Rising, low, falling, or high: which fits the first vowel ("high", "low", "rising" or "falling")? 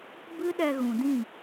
high